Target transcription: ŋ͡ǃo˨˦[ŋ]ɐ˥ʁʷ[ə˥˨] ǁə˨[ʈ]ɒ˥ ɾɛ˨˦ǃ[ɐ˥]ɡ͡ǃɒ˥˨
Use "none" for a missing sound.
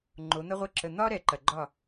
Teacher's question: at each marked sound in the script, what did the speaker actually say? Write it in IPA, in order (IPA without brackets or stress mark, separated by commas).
n̪, ə˥˨, n̪, ɐ˨